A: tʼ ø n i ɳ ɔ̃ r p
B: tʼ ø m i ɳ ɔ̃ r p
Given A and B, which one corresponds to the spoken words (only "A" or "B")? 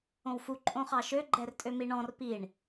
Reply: B